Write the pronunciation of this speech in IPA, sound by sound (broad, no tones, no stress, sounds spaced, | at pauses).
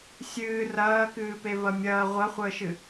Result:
sʲ ɨː r ɐː k ɨː p e v ɐ mʲ ɐː ʁʷ ɐ χʷ əː ʃ ɨ